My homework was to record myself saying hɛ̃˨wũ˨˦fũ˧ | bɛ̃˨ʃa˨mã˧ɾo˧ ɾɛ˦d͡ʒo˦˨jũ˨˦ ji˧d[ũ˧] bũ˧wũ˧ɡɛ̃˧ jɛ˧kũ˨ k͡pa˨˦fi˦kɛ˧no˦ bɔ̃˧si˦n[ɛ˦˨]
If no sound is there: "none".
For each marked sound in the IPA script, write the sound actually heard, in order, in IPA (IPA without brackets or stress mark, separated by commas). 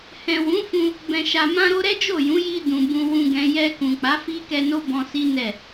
ũ˨, ɛ˦˨